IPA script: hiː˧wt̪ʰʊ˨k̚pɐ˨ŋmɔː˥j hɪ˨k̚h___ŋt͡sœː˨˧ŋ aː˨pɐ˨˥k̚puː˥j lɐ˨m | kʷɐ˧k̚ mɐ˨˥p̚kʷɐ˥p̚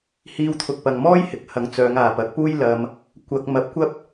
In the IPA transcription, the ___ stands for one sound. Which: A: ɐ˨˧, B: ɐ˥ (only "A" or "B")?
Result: A